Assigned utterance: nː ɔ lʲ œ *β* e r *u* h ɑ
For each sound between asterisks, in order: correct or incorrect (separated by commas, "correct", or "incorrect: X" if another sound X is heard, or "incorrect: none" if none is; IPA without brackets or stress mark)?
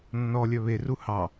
correct, correct